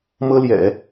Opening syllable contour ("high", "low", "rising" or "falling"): high